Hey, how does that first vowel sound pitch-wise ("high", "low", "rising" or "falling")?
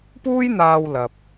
high